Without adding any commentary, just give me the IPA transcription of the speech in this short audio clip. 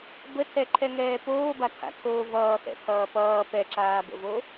b ə tʰ ɛ ǃʰ ɛ ŋ ɛː p oː b a tʰ a̰ tʰ oː v ʌː x ɛ̰ pʰ ʌː p ʌː p ɛ ǁ aː b ə̰ v o

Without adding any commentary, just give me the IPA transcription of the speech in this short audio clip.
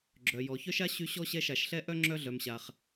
ɡ͡ǁ œ˨ j ɔ˨ ç œ˥ ʃ a˥ ɕ y˦ ɕ ɔ˥ ɕ ɛ˦ ʃ a˨ ʃ ɬ ɛ˥ ʔ œ˥ ŋ͡ǁ œ˦ ɮ œ˨ m ɕ a˨ χ

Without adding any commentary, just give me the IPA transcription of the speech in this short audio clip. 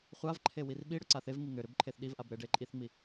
χʷ a v ǃʰ e w i r ɓ i ɽ ʏ ǀ a θ e v ŋ i ŋ ʏ ɾ ʏ b ǃʰ e θ ɗ i v ʔ a b ɾ e ɖ e ǃʼ i θ ŋ͡m i

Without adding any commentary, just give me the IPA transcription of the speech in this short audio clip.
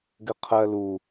ɡ ɘ qʰ ɜ l u

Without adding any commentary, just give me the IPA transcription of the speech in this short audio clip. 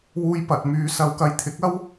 w uː˥ j p ɐ˨˥ t̚ m yː˥ s ɐ˥ w k ɐ˥ j t̪ʰ ɪ˨˥ k̚ ɐ˥ w

